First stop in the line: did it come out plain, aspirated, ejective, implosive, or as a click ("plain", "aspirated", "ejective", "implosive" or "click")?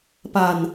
plain